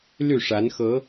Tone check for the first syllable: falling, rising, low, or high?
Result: falling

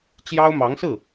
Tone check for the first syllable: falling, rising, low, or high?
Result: high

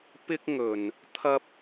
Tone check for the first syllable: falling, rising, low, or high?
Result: high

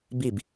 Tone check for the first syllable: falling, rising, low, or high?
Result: falling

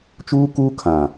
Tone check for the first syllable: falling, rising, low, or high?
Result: high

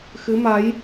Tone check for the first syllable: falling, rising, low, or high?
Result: rising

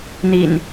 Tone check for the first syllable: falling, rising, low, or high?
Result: low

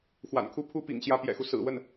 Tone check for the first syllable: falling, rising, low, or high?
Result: low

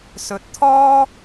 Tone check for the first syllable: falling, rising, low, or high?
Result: rising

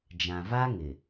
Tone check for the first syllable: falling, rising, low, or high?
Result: low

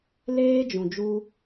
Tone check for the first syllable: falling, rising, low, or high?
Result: high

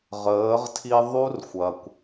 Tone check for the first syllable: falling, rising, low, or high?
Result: rising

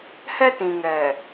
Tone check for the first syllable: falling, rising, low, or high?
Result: high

